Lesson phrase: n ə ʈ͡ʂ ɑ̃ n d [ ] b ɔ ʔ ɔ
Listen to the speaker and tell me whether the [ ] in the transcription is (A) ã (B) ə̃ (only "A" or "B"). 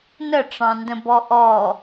B